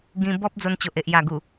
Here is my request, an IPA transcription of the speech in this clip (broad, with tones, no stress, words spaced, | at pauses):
ɡĩ˧ bɔ˦p̚ d͡zo˧nt͡ɕo˨ʔe˨ʔ ja˨˩ɡu˨˩